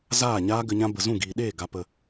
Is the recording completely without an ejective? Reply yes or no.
yes